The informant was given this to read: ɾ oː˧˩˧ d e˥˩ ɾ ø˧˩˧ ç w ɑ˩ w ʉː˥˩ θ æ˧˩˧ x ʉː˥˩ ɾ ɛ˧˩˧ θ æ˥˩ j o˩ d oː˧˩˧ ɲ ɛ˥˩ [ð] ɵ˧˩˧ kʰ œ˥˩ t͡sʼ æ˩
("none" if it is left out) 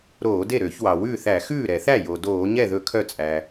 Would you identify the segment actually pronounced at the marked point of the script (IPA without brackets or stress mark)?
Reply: ð